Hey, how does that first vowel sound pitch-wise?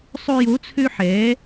high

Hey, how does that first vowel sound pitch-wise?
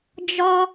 high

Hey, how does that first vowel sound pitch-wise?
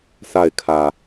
falling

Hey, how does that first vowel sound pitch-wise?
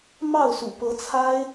falling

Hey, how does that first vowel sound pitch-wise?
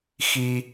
high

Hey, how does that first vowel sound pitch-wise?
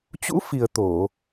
rising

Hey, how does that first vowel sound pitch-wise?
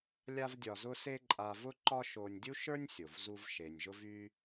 high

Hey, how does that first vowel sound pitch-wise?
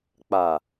low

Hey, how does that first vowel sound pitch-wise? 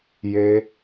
high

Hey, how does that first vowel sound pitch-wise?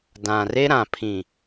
low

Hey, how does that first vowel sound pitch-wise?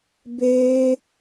high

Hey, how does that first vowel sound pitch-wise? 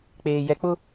low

